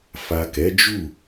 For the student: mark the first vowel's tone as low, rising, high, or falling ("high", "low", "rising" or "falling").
low